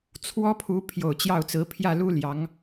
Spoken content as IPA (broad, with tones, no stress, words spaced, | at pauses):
t͡sʰwɔ˥pʰu˧˥pʰjo˨˩ʊ̯ t͡ɕjɑ˥˩ʊ̯t͡sɹ̩˧˥ pʰjä˥˩lu˥ ljɑ˧˥ŋ